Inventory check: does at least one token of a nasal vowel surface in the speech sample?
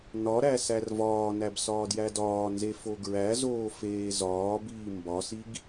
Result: no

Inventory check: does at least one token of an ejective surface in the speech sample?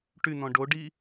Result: no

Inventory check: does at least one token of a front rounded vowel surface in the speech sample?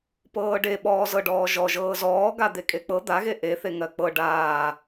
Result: no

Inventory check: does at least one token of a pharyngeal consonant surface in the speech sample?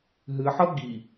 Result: yes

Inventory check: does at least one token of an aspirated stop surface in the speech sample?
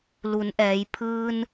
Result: yes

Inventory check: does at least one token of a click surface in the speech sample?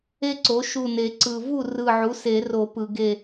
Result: yes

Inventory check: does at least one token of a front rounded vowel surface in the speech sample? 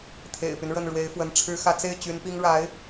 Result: yes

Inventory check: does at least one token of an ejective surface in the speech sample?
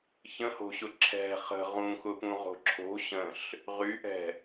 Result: no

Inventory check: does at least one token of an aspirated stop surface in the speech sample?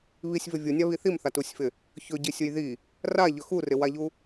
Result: no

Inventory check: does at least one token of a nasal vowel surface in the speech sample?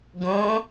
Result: yes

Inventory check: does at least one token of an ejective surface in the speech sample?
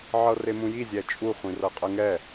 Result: yes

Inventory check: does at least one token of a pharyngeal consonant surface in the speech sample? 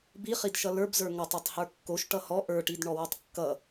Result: no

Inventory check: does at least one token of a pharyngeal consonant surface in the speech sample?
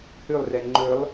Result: no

